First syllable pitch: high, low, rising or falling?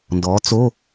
rising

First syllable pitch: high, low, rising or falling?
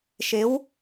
rising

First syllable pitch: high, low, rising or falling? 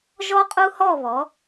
high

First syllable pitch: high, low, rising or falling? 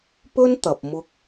high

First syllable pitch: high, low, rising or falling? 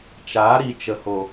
rising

